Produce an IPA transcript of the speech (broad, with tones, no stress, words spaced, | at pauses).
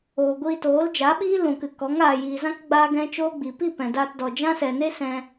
oː˨ ɡʷiː˧toː˨˦ld͡ʒa˨˦ɓiː˦ lũ˨kɨ˨ kɔ˨˦ŋaː˨jiː˨zã˦k ɡ͡baː˦ɡɛ̃˦ t͡ʃoː˦ɡ͡bi˨ pi˦˨ pɛ̃˨daː˧tdɔ˨ d͡ʒã˦sɛ˨ne˦ sɛ̃˧